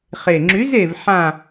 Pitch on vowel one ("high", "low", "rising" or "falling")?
low